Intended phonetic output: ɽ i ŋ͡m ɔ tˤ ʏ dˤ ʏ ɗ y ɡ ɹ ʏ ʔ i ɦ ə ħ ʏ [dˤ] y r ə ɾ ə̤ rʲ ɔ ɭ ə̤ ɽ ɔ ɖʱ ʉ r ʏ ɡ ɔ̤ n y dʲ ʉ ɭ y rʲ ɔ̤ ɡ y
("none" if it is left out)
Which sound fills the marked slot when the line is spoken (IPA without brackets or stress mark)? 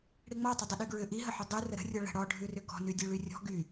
dˤ